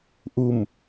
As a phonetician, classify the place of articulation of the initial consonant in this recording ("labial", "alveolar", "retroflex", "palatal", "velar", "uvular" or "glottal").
glottal